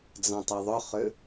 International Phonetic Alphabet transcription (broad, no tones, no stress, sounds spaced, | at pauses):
d͡z ɑ̃ tˤ ɛ ðˤ ʏ χ ʏ